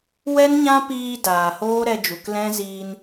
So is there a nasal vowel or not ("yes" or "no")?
yes